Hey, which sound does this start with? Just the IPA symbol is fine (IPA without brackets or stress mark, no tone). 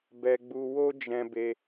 b